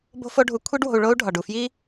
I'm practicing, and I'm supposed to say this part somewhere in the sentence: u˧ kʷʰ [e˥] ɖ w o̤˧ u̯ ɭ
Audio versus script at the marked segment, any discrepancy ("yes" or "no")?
yes